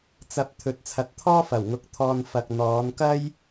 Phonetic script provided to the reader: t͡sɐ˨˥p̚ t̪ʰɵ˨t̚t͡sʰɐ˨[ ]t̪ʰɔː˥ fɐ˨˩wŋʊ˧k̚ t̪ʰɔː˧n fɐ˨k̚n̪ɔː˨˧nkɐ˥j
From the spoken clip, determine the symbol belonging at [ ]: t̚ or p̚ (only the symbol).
t̚